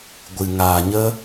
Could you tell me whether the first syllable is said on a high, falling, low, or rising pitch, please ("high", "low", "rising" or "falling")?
low